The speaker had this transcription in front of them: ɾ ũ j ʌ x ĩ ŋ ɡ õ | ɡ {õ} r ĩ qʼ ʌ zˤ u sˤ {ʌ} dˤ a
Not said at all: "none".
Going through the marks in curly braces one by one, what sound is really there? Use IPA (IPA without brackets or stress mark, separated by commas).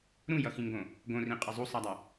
õ, a